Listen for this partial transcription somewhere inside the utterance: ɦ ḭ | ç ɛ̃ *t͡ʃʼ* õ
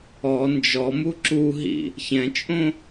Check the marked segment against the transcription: correct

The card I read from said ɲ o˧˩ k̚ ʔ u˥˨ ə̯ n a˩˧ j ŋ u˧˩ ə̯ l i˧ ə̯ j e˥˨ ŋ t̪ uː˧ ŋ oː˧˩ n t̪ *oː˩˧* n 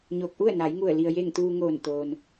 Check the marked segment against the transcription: incorrect: oː˩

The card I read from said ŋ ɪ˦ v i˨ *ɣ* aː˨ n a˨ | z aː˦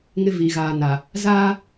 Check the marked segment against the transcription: correct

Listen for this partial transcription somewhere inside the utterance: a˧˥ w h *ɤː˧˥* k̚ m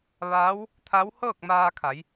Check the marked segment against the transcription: incorrect: ɤː˥˨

